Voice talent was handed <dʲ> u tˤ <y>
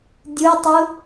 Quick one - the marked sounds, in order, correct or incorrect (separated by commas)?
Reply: correct, incorrect